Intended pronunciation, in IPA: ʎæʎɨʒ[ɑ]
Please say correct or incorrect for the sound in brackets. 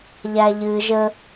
incorrect